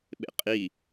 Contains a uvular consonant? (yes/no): yes